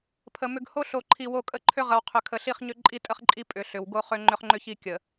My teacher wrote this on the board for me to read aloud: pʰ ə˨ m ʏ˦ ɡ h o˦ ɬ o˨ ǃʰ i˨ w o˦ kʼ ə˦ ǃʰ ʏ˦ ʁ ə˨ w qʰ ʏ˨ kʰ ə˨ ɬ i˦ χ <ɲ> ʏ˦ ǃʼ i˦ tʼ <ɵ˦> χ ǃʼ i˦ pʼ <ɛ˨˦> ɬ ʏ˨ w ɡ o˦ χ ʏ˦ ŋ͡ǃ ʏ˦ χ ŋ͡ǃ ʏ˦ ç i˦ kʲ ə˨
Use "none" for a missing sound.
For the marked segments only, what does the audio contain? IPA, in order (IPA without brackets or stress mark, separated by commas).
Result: ɲ, ə˦, ʏ˨˦